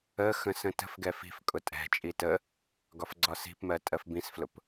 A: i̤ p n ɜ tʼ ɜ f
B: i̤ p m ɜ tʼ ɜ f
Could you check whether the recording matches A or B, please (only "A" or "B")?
B